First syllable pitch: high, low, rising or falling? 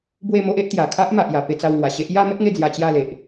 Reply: falling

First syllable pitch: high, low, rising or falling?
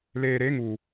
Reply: low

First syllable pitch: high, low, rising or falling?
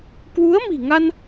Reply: rising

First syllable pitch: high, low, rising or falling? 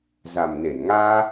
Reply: low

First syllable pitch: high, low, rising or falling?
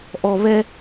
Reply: low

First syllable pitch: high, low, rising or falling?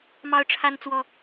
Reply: high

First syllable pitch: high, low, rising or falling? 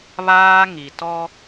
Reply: high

